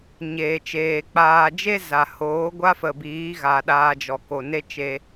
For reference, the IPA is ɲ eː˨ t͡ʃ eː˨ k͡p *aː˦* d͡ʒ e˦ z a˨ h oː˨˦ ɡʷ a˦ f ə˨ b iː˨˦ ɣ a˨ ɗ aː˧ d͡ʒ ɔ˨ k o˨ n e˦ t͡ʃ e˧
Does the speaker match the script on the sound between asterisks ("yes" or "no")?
no